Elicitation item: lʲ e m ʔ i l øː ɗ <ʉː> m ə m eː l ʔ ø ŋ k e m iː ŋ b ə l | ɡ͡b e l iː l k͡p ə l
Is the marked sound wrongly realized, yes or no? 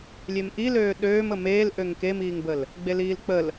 yes